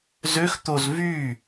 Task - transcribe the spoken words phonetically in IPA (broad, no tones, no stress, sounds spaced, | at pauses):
z ø x t̪ o z v y